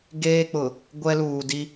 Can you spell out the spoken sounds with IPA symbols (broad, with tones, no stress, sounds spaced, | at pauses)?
ɡ eː˦ k͡p ʊ˨ | ɡʷ ɛ˦ l uː˨ d i˦